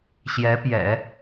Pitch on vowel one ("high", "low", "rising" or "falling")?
rising